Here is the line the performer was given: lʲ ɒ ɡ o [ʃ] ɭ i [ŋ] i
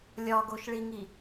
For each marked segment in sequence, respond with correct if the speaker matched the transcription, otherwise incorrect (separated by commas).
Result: correct, correct